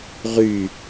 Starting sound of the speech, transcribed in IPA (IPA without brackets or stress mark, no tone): ʁ